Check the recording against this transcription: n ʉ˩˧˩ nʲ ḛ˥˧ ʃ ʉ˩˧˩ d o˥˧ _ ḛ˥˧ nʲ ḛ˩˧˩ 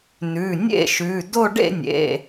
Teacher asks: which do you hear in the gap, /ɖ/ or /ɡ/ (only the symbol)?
ɖ